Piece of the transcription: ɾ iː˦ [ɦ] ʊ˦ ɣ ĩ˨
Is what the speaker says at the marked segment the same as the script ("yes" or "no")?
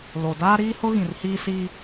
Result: no